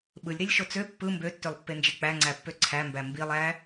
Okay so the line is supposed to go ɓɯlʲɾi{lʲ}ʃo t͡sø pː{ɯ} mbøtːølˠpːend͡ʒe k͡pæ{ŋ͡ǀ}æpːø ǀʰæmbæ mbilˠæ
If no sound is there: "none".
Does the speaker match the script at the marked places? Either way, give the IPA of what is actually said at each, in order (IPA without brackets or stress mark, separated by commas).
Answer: lʲ, ɯ, ŋ͡ǀ